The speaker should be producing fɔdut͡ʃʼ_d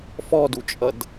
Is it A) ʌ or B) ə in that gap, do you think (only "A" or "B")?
A